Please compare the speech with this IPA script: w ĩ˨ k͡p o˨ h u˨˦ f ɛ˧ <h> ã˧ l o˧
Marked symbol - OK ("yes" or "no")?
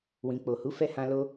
yes